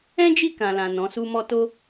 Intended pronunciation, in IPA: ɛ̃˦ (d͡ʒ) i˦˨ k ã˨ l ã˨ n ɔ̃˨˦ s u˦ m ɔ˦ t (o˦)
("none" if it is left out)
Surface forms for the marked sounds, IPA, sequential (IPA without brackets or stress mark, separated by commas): d͡ʒ, o˦